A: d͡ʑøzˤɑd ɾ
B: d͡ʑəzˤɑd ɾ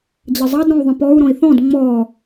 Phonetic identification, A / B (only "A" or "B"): B